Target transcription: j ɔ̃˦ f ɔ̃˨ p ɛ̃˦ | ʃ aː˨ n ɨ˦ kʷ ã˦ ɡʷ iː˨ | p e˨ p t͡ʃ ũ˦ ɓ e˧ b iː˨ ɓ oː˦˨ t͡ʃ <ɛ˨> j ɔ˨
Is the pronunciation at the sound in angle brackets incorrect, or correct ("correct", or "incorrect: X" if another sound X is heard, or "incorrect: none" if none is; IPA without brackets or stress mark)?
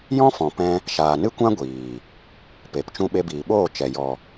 correct